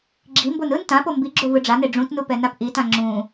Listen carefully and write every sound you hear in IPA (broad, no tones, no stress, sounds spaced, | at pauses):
ɡ͡ǁ i m b o n ɯ n t ã p o m b i ɡ͡ǁ o v ɯ ɖ͡ʐ a n e ɖ͡ʐ ũ t n u p ɛ n a p ʔ i t ã ŋ͡ǁ ũ